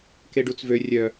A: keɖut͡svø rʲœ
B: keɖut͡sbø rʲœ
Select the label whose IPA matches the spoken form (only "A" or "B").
A